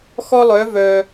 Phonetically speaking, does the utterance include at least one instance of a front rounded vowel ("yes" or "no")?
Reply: yes